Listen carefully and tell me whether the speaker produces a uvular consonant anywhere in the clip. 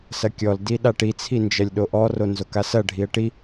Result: no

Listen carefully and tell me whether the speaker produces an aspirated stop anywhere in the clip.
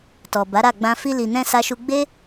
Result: no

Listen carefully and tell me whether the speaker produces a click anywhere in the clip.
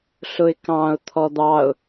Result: no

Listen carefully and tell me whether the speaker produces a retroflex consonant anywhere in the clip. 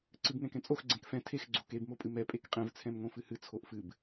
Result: no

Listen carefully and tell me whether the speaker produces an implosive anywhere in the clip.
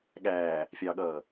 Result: yes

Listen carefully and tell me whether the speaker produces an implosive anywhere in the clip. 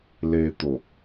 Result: no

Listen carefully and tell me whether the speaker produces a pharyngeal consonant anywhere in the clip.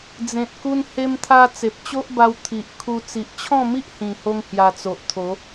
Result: no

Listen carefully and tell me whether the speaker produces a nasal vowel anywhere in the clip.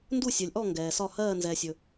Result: no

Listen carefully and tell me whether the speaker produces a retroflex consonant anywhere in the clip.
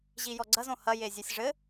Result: yes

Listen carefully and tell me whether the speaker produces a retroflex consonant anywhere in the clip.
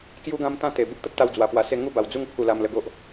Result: no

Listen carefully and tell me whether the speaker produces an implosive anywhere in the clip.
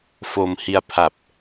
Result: no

